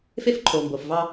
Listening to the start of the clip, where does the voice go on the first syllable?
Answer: high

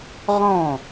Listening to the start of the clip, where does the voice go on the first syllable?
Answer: falling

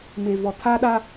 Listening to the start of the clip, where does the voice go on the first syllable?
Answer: low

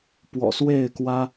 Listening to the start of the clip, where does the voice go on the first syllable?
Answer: low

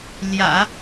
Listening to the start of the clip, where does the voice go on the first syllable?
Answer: low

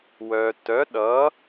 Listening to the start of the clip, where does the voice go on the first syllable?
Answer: low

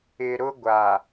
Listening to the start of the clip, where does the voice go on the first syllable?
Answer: low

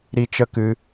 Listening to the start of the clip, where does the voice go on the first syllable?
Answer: high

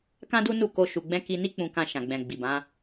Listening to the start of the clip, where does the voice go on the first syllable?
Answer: high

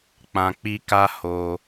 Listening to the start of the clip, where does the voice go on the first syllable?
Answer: low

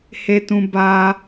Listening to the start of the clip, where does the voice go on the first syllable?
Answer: high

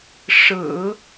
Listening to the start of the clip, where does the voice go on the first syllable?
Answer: low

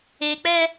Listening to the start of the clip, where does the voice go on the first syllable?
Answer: low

